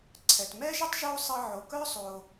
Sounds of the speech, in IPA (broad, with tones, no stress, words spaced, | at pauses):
ǀʰɛ˩tmɛ˥ʒə˥tˤ ʒo˧ sˤə˧ʕo˩kœ˥ sˤo˩